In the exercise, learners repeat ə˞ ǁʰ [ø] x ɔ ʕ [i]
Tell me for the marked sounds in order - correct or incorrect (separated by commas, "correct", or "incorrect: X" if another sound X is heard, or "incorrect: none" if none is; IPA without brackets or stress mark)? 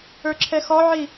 incorrect: ɛ, correct